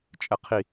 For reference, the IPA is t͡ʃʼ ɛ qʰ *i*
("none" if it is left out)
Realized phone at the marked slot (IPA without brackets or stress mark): i